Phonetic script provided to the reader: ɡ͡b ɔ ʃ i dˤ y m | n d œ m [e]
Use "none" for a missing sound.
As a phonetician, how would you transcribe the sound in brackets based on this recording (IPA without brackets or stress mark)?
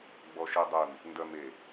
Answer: e